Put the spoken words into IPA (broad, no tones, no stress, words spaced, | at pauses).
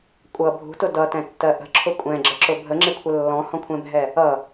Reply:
kʷʼʌ bʱṳtʊ dʌtɛ̃tːɜ ʔə̤ǁʰʊ kʷʼɛ̃ɡ͡ǁəǁʊ bʱəŋ͡ǁɪkʷʰə lːɔ̃hɔ̃kʷʰɛ̃bʱɛ | ʌ